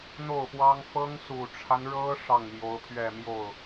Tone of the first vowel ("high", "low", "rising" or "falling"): falling